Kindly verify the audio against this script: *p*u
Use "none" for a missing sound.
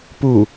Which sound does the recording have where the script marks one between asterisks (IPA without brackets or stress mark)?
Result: p